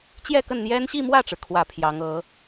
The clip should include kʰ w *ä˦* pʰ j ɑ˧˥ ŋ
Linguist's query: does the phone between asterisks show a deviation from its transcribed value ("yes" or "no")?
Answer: yes